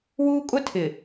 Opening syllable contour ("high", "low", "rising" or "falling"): high